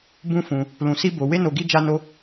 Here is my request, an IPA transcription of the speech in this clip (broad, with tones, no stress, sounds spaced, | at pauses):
b ũ˦ f ũ˧ | l ũ˧ s i˦ b o˧ w e˦ n o˧ ɡ i˦ d͡ʒ a˦ n o˦